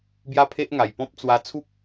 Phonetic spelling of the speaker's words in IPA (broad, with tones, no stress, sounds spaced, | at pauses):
b j a˥˧ pʰ e˦ ʔ ŋ a˨˩ j p ɔ̃˦ p̚ t͡s w a˧ t͡sʰ u˦ k̚